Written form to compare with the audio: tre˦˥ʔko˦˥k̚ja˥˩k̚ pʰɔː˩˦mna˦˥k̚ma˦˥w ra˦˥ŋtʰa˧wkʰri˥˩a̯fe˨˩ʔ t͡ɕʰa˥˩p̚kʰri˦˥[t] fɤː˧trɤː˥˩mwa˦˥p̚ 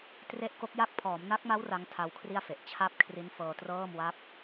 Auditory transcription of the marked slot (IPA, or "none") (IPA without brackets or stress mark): n